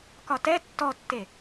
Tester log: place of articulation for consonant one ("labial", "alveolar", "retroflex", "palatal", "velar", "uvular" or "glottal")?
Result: velar